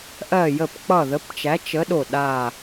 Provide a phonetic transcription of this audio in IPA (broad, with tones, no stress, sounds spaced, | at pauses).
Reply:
ʔ ɜ˧˩ j ə˧˩ p k͡p ʌ˧˩ ð ə˨˥ p t͡ʃ æ˨˥ t͡ʃ ə˨˥ ɗ o˧˩ ɗ a˧˩